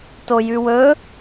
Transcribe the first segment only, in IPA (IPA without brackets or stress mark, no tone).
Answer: t